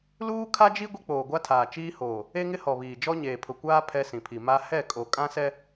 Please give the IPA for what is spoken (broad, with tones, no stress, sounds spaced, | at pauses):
l uː˦ kʰ a˦ d͡ʒ i˦ ɡʷ i˦ k͡p oː˨ ɡʷ a˦ tʰ aː˨ t͡ʃ iː˦ h oː˨ | e˦ ŋ ɪ˦ h ɔ˨ β iː˨ d͡ʒ ɔ˦ ɲ eː˨ pʰ ʊ˨ kʷ aː˦ pʰ ɛ˦ s ĩ˨ pʰ i˨ m a˦ h ɛ˦˨ kʼ o˨ kʼ ã˦ s ɛ˦